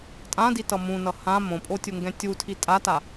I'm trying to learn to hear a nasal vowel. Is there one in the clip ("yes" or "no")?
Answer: yes